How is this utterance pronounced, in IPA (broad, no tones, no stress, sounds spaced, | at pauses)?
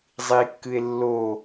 zˤ i kː ɨ e̯ lː o